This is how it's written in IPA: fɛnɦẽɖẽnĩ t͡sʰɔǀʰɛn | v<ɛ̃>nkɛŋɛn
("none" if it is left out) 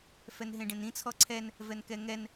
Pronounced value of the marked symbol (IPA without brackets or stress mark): ɛ